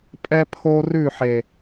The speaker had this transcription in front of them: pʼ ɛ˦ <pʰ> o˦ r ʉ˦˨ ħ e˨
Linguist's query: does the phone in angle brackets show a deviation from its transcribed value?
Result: no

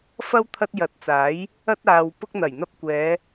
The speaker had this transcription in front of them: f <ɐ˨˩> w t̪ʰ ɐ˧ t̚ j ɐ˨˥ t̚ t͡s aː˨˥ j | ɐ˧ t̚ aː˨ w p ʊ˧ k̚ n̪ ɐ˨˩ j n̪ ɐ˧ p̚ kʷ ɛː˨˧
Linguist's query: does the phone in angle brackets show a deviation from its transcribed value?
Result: yes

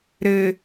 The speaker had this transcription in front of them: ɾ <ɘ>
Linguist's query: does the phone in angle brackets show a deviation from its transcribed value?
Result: no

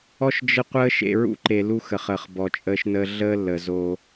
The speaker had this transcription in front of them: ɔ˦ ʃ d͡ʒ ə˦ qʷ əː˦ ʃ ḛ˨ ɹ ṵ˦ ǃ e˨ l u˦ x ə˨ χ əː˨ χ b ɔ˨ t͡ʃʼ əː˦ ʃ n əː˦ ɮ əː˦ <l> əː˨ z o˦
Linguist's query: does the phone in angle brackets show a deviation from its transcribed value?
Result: yes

